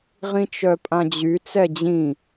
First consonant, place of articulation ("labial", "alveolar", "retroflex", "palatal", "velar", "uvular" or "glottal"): uvular